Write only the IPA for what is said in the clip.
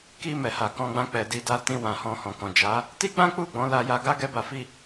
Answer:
ki˧ mɛ˨ha˨kɔ̃˧ɡ͡bã˧ k͡pɛ˨di˧da˧ tĩ˧ wã˨hɔ̃˧hɔ̃˨ kɔ̃˨d͡ʒa˨˦ | ti˦ɡ͡bã˦k͡pu˦˨ ɡ͡bɔ̃˨˦la˧ja˧ɡa˦ ɡɛ˦ba˧fi˦

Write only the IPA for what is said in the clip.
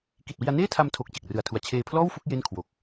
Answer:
ki˨˩t̚wi˧a̯neː˥˩tʰa˧m tʰo˨˩k̚ t͡ɕe˨˩k̚rɯ˨˩a̯tʰu˨˩a̯ t͡ɕʰeː˧pʰlɔː˥˩wfu˥˩k̚ je˥˩n kʰwo˨˩k̚

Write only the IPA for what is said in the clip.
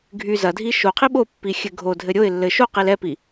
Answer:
ɡʱy zɐdʱi ʃoqʰi ɓopːixʲɘ ɡʱodʱɘ ɾʲoɪ̯ lːɘ ʃoqil ɛpi

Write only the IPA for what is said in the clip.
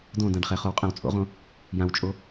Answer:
dõdãɖχɛ χowqʼãwt͡sʼo̰ʁõ | jãwt͡ʃʼo

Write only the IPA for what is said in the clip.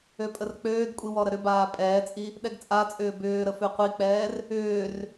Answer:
øpʼərk͡pøːdkʷʼi wɔɾəɾʏbaː pʼɛːt͡sʼi | ɗɛɡt͡sʼat͡sʼʏː bʏːɾə føqʷik͡pɛːr | ʏːr

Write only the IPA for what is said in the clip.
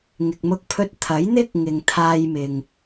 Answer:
ŋɪ˨k̚mʊ˧k̚pʰɵ˧t̚ t̪ʰɐ˨˥jn̪ɪ˥k̚ŋɪ˨ŋ t̪ʰaː˧jmɪ˨ŋ

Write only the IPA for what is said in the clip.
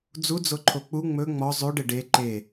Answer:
d͡zud͡zoǃʰo k͡pu ŋ͡mɵ ŋ͡mɔ zˤʉɖe ɖe ǃe

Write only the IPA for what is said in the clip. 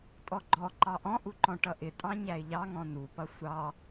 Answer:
tʼɔɡ͡ǃɔ ǃɑʔɔ̃ʔuǃɔ̃ ʈʌʔɪtʼɑ̃ ɲæɪ̯ʎɑŋɔ̃ nupʌ sʷɑ

